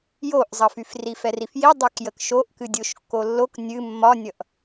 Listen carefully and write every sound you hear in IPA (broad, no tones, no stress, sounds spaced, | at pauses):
j o ʔ zˤ ʌ f y f r i f ɛ r i f j i dˤ y k j ə k ʃ o ʔ k ɨ dʲ o ʃ kː o lː o k nʲ ɨ mː ɒ nʲ ʌ ʔ